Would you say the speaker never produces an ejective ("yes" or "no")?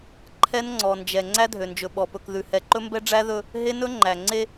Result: yes